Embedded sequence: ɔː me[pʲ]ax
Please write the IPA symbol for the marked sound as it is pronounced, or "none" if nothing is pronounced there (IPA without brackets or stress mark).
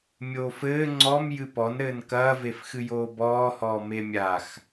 mʲ